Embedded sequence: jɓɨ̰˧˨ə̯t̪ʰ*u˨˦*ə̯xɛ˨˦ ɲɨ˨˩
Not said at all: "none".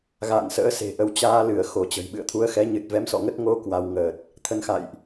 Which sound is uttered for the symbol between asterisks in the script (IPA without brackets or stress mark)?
u˨˦